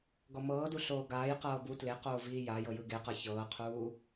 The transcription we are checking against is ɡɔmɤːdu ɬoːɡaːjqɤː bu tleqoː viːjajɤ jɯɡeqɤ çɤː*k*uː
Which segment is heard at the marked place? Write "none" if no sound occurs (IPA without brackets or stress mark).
qʰ